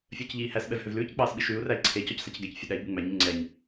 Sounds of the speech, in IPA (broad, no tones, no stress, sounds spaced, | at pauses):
fʲ œː c ʎ iː h æ s ɓ ɛ v h ø v l ʉː c k͡p ɑː s ɓ i ʃ ʉː u̯ r æ i̯ ǀʰ e c ɔ c s ɑ c ɡ ɛ c fʲ e ɗ æ i̯ ɓ ʉ ŋ͡m æ ɲ ʉ ŋ͡ǀ ɛ ɲ